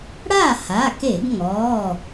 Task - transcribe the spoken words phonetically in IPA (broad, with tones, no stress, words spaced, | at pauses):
ɽa˥˩ha˩˧˩ke˧˩˧ɡŋɔː˩˧˩